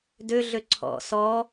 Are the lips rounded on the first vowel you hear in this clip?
yes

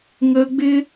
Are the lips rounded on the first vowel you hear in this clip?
no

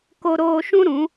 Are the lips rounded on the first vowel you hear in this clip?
yes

